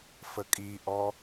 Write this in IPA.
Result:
f ə kʼ i ʔ ɔ

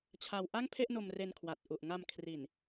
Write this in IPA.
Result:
t͡ɕʰ a˧ w ʔ a˥˩ ŋ pʰ e˥˩ ʔ n o˧ m r e˧ n kʰ w a˨˩ t̚ ʔ u˨˩ ʔ ŋ a˧ m kʰ r i˨˩ n

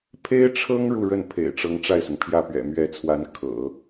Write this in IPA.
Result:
pʰ e˥ ɪ̯ ʈ͡ʂʰ ɤ˥ ŋ ɻ u˥˧ ɻ ə˥˩ n pʰ ḛ˨˩ ɪ̯ ʈ͡ʂ ɤ˧˥ ŋ ʈ͡ʂ a˥˩ ɪ̯ s ʊ˩ ŋ pʰ j ä˥˩ p ɥ ɛ̰˨˩ m ɥ ɛ˧˥ t͡sʰ w a˧˥ n kʰ ɤ̰˨˩˦

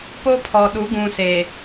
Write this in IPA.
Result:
p o˦ pʰ ɔ˨ ɗ u˨˦ ɡ ũ˨ s e˨

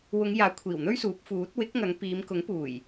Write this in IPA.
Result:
w ʊ˨˧ ŋ j aː˨˥ kʷʰ iː˨˩ w n̪ ɵ˥ ɥ s uː˨˥ p̚ f uː˨˥ t̚ w ɪ˨˥ k̚ ŋ ɐ˨˧ ŋ p iː˨˧ m k ʊ˨˥ ŋ p uː˨˩ j

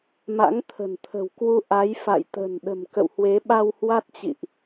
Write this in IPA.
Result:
m a̰˧˥ ŋ t̪ʰ ə̤˨˩ n t̪ʰ ə̤˨˩ w k w u˧ ʔ a˨˦ j f a̰˧˨ j t̪ ə̤˨˩ n ɗ ə̤˨˩ m k ə̰˧˨ w h w e˨˦ ɓ a˧ w h w a˦˥ t̚ t͡ɕ ḭ˧˨ ʔ

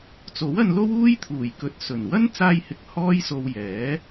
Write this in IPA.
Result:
t͡s o˨˥ w ɐ˧ n l o˥ w uː˥ j t̪ʰ uː˨˩ j k ɵ˨˥ t̚ s ɵ˨˩ n w ɐ˥ n t͡s aː˧ j h ɪ˨ k̚ h ɔː˥ j s o˧ w j ɛː˨˥

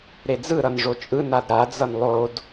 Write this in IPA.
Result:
ɾ e d͡z ɯ ɾ ʌ n ʐ o t͡ʃʼ ɯ n a d ɾ a d͡z ʌ n lˠ o d

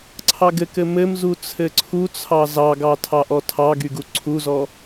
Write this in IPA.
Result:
ǀʰ ɑ ɡ ɘ k ɘ m ɘ m z u t͡sʰ ɘ ǀʰ u t͡sʰ ɑ z ɑ ɡ ɑ tʰ ɑ ʔ ɔ tʰ ɑ ɡ y ɡ u ǀʰ u z ɔ

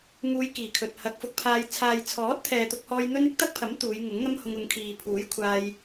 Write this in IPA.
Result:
ŋ uː˧ j k iː˨˩ kʰ ɵ˨ t̚ h ɐ˨˥ k̚ f ʊ˨˥ k̚ pʰ aː˧ j t͡sʰ aː˨ j t͡sʰ ɔː˨˥ t̚ t̪ʰ ɛː˨ t̪ ʊ˥ k̚ h ɔː˥ j n̪ ɵ˧ n ɪ˨˥ k̚ t̪ ɐ˥ k̚ pʰ ɐ˨˥ m t̪ uː˨˧ j ŋ ʊ˨˥ ŋ n̪ ɐ˥ m h ʊ˧ ŋ ʊ˨˧ ŋ kʰ iː˨ pʰ uː˨˥ j kʷʰ aː˧ j

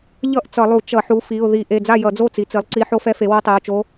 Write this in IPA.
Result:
ʎ ʌ˥˩ ʔ t͡s ʌ˧˩˧ lˠ u˧˩˧ t͡ʃ ʌ˧˩˧ ħ u˩˥ f i˩˧˩ ʊ̯ ð i˧˩˧ ʔ e˩˧˩ d͡z a˥˩ j ʌ˧˩˧ d͡z o˥˩ t͡s i˩˥ t͡s i˩˥ lˠ ǀ i˧˥ ħ o˧˥ f ɛ˧˥ f e˩˥ w o˧˥ tˤ e˩˧˩ ʊ̯ t͡ʃ o˧˥

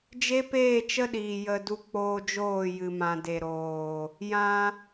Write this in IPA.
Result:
d͡ʒ e˦ p eː˦˨ t͡ʃ ə˦ ɗ iː˨ j ə˧ d u˧ k͡p oː˧ d͡ʒ oː˦˨ j ɨ˧ m ã˧ d e˨ ɾ oː˨ | j ã˧

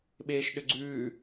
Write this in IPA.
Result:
ɓ eː ʃ ɗ ʏ ɡ͡ǀ ʉː

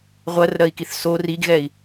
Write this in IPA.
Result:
ʁʷ ɜ r ɾ ɜ i̯ k i θ s o r i ɡ ɣ ɛ i̯

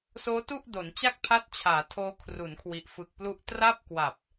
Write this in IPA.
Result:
s oː˦˥ t u˥˩ ʔ d o˩˦ n t͡ɕ a˥˩ k̚ pʰ a˦˥ t̚ t͡ɕʰ aː˩˦ tʰ oː˦˥ kʰ r u˩˦ n kʰ w i˨˩ ʔ f ɯ˨˩ k̚ p l u˥˩ ʔ t r a˥˩ p̚ k w a˨˩ p̚

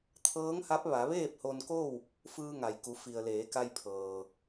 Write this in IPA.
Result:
t̪ʰ ɤː˧˥ ŋ h a˧˥ p̚ ʋ a˩˧ ʋ eː˥˨ p̚ h o˧ n k o˥˨ w | f ɯː˧ ŋ a˩ j k u˩˧ f i˩ ə̯ l eː˩˧ k a˧ j pʰ ɤː˩

